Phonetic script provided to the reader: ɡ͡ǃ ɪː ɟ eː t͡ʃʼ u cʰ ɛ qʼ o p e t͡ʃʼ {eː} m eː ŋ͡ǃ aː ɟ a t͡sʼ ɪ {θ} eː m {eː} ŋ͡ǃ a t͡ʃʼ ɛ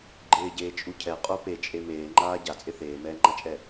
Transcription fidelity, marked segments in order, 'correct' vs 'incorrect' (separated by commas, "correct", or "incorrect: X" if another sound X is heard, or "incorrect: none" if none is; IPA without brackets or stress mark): incorrect: e, correct, incorrect: ɛː